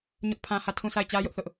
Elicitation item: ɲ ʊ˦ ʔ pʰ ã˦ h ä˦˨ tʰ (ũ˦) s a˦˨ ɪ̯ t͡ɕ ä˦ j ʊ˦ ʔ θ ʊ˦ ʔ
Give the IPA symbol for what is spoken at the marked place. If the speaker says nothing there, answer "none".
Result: ũ˦˨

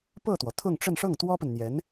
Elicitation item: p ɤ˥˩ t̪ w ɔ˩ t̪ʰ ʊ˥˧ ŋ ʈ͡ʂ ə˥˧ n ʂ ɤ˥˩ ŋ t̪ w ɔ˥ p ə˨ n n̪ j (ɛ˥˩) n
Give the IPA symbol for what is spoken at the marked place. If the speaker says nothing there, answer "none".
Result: ɛ˧˥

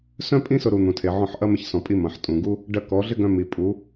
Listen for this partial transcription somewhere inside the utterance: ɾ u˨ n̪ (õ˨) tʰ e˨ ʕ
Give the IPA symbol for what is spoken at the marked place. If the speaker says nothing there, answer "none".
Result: ũ˨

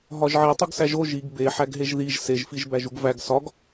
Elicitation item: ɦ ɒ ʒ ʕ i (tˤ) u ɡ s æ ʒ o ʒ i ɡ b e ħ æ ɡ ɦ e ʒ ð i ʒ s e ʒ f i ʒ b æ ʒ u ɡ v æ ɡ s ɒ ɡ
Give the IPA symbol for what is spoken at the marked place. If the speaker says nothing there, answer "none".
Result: tˤ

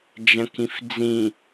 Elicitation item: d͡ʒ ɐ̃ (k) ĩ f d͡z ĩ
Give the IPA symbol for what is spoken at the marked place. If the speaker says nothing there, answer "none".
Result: k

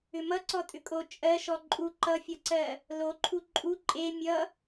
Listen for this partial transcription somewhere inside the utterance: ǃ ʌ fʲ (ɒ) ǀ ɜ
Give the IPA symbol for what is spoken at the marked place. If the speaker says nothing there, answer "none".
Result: ʌ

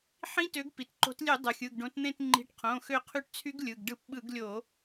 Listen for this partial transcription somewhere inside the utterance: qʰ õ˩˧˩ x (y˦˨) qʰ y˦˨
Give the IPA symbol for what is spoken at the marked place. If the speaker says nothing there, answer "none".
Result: ø˦˨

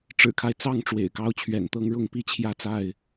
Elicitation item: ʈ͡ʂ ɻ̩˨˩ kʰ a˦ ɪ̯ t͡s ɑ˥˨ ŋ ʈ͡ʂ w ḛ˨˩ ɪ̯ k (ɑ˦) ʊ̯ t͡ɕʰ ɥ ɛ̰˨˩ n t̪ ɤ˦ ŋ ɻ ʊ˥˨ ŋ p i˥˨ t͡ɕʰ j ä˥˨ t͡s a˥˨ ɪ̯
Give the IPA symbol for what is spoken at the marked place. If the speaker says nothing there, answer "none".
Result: ɑ˦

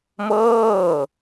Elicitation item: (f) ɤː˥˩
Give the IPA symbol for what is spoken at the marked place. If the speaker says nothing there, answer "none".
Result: m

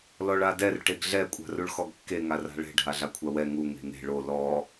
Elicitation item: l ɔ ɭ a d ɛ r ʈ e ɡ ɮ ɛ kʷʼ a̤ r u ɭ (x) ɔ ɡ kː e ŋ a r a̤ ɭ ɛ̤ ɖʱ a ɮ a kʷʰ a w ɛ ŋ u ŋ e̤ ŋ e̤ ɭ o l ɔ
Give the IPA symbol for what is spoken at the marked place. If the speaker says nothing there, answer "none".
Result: x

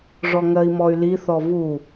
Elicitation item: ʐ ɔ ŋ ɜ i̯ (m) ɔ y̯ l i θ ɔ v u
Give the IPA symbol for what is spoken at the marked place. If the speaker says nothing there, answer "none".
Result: m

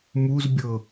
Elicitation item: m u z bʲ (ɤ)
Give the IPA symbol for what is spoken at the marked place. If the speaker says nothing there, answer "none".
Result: ɤ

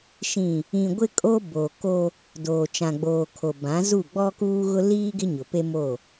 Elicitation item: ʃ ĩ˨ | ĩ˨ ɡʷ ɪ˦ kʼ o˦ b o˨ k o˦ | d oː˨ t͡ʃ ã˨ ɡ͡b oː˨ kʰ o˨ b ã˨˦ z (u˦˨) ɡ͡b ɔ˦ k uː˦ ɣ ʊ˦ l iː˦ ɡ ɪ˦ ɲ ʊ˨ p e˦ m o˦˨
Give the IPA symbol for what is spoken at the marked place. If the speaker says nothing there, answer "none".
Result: u˦˨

